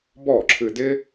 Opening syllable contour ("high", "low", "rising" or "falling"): falling